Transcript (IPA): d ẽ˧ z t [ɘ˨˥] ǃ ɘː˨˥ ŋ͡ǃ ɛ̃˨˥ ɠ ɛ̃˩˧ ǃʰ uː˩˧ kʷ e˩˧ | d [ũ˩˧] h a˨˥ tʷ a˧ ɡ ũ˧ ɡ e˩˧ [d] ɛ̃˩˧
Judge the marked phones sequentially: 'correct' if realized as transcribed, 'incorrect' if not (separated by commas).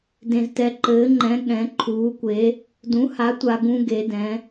incorrect, incorrect, correct